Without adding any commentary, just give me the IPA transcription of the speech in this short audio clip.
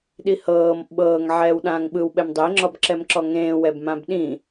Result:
ɗihɤːm ɓɤːŋ ʕɛːwɗãːŋɓɯwɓɛm dˤeŋ͡ǁɔb ǁɛmǁɔŋẽːwɛb mãbɗĩ

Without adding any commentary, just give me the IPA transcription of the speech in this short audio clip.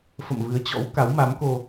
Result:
fə̰˧˨mvɨ˨˦ə̯t͡ɕɔ̰˧˥w ka˨˦wma˨˦mko˧

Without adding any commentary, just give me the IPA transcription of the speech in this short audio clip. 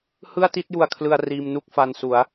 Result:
hɯ˥˩a̯ti˥˩t̚ju˧a̯kʰlɯ˧a̯ riː˧mnu˥˩k̚fa˧n su˩˦a̯

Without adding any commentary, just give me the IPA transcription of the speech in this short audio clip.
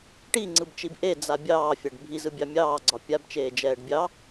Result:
ʈiŋ͡ǀɯbt͡ʃib ʔed͡za bʲɑːfʲaɖ bʱizɯbʲɑ mʲɑːɡ͡ǀɒ pʲabt͡ʃeːd͡ʒɛːɖ bʲɑ

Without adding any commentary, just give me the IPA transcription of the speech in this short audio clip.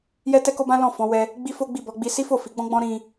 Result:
jɛ˦tɛ˦ko˦bã˦ lɔ̃˦˨ fɔ̃˨˦wɛ˧ | ɡ͡bi˦fo˦ɡ͡bi˦˨ bɔ˨˦ɡ͡bi˦ si˦fo˦˨fi˨˦ ɡ͡bɔ̃˦ɡ͡bɔ̃˦ ɾĩ˧

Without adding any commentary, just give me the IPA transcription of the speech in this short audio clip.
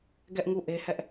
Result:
ɡɛ˦ʔŋu˦˨ ʔe˦hɛ˦ʔ

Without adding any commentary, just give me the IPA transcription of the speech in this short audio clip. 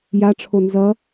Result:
jaʈ͡ʂʰo nzʌ

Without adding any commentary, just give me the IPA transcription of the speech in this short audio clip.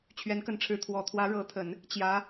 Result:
t͡ɕʰɥɛ˧˥nkə˧˥nʈ͡ʂʰɻ̩˧˥ t̪ʰwɔ˨˩ t̪ʰwä˧˥ɻɤ˧˥t̪ʰə˨˩˦n | t͡ɕjä˧˥

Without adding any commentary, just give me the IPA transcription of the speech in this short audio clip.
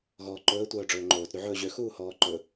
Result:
ɣɔːǃɵː tʷœːɖ͡ʐɵːŋ͡ǃoːt ɾyʕɵːʑø xuːhɔːǃɵ

